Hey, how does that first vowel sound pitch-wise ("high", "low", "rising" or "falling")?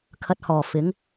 low